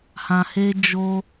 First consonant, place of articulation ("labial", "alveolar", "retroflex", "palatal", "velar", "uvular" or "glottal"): glottal